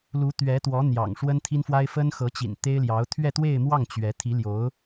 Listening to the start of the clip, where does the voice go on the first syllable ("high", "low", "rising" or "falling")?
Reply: rising